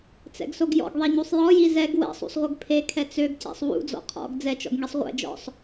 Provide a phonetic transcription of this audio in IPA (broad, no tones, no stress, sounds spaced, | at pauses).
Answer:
t͡s ɛ̰ ɡ s o ɡ j ɔ̰ ɡ ðˤ ɛ ɲ u sˤ j ɔ j i z ɛ ɡ w ɛ̰ sˤ ṵ sˤ ʁʷ ɘ ɡ pʰ e kʰ ɛ t͡s ø ɡ c ɛ̰ sˤ w ṵ d͡z ɔ̰ qʰ ɔ̰ ɡ d͡z ɛ t͡ʃ ɔ̰ ɡ ŋ i sˤ ʁʷ ɛ̰ d͡ʒ ɔ̰ sˤ